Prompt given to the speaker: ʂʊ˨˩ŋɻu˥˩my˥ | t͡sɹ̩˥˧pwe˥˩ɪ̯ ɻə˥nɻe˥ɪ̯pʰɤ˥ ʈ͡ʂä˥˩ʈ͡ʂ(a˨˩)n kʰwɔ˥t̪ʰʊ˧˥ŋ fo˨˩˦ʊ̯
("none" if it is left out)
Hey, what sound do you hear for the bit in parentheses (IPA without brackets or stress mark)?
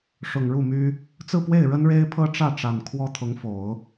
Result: a˨˩